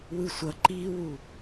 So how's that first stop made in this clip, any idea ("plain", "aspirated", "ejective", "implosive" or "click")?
click